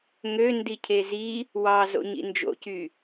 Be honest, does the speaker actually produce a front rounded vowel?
yes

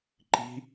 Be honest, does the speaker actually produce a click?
yes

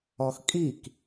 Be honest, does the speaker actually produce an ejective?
yes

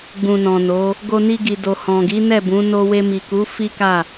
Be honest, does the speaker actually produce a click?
no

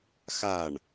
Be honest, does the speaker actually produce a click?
no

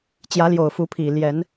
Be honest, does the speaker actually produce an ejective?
no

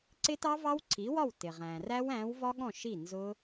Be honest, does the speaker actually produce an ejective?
no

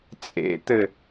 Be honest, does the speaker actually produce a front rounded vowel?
no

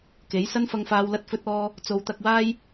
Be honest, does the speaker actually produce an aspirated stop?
no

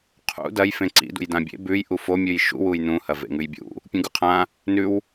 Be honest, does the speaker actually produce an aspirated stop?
yes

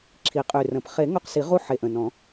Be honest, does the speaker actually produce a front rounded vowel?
yes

